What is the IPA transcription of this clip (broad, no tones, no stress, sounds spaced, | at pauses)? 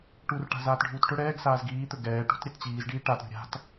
ʈ u r ʈ a̤ z aː t ɖʱ uː t ʈ ɵ ɽ ɛː ɡ s aː z ɡ iː t̪ ɵ ɡ ɛː ʈ ṳ t ɾʲ ɛ t t͡ɕ iː z ɖ iː ʈ a t ɾʲ ṳ ɾʲ a̤ t